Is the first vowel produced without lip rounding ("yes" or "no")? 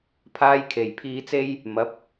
yes